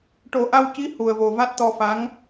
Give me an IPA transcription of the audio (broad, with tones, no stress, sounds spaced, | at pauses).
ʈ o˨˩˦ ʔ a˧ w c i˧˥ h u˨˩ ə̯ v o˨˩ v a˦˥ t̚ t̪ ɔ˧ f a˧˥ ŋ